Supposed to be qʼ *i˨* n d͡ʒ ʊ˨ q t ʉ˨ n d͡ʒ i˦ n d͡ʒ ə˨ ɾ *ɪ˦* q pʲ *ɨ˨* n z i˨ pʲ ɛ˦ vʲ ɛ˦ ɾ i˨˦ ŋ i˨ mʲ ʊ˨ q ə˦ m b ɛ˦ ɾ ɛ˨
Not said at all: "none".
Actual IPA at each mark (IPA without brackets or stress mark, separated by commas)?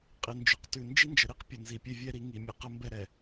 i˨, i˦, ə˨